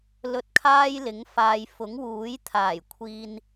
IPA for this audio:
lɵ˧t̚kʰaː˥jlɪ˨˥ŋfaː˨j fʊ˨˥ŋwuː˨˥j t̪ʰaː˨˩jkʷʰiː˨n

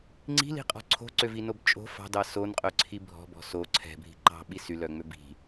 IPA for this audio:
ŋ͡ǀi̤li̤qʼɔ̤ ǀʰo̤ǀøvinob t͡ʃʼo̤ fɑ̤dɑ sonqʼœǀʰi bʱɔ̤bɔ̤ so ǀʰɛ̤bʱi̤ ǃɑ̤ɓi sylœŋ͡mø bi̤

